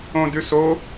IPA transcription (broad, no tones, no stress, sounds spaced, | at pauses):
õ d ʉ s o